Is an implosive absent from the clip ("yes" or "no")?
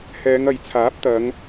yes